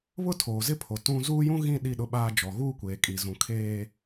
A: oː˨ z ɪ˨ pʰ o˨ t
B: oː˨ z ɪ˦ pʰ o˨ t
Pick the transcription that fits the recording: B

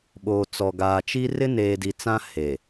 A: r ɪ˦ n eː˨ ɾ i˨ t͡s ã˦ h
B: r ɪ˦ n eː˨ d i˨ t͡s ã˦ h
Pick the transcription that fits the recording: B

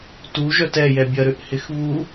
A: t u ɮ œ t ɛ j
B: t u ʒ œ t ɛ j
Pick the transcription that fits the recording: B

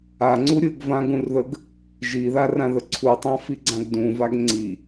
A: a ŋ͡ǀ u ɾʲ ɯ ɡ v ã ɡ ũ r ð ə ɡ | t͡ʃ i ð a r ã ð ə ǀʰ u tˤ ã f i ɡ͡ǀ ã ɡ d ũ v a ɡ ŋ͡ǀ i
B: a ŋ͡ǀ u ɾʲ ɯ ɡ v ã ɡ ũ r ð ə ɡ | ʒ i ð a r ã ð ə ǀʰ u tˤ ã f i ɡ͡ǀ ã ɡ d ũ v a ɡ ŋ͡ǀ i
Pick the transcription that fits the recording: B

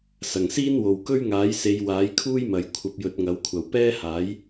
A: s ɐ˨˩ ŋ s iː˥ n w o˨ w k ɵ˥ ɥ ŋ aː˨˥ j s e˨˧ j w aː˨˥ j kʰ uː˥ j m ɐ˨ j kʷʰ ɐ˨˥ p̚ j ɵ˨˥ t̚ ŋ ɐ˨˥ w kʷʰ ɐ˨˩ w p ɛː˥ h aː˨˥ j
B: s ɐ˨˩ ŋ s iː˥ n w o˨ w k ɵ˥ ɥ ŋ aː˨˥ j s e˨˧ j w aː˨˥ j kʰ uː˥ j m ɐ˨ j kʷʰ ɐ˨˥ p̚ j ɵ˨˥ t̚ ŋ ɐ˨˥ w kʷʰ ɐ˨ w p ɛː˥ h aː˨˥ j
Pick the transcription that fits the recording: B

